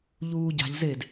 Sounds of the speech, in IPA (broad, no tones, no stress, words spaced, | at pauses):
ʎuːɟa̤ʎzed